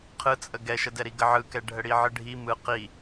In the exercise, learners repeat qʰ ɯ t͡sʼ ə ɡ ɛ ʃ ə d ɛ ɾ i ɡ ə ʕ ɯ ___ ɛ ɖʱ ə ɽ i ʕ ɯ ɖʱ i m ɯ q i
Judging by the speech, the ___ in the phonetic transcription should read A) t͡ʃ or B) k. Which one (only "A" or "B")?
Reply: B